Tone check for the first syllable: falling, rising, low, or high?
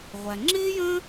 low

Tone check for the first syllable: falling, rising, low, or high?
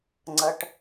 low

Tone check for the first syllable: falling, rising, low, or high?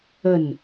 falling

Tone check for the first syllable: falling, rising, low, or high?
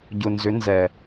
low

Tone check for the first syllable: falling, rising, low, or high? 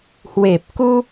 low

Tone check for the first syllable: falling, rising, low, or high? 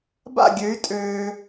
falling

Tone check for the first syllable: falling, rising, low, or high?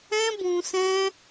high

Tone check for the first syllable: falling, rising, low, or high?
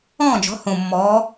falling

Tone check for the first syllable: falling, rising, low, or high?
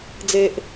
high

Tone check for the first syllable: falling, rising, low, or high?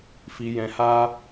low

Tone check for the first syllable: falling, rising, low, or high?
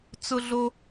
high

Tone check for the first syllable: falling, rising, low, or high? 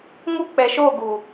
high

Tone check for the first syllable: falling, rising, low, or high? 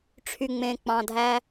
low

